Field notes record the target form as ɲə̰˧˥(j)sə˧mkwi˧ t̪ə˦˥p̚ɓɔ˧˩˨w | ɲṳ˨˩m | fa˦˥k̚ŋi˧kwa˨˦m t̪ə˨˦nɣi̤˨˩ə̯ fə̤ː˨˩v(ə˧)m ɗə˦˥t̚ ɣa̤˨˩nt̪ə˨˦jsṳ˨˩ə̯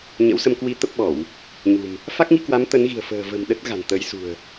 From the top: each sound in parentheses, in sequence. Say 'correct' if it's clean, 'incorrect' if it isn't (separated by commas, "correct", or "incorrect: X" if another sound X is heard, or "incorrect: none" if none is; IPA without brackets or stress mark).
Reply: incorrect: w, incorrect: ə̤˨˩